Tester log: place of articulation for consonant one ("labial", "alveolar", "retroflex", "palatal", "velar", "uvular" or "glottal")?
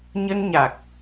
palatal